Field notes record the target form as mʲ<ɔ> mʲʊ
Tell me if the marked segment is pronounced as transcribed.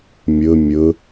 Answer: no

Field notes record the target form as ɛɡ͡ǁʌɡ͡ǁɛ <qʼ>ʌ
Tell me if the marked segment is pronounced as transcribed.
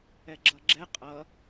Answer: yes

